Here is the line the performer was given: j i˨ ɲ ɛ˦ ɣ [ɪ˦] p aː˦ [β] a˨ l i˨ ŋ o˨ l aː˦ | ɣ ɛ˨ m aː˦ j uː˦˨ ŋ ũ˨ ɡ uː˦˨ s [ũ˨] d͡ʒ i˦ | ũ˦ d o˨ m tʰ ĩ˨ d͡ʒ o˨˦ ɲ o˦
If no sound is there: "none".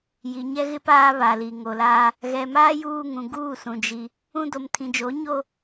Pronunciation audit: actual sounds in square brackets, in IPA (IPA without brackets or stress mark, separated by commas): ɪ˦, β, ũ˨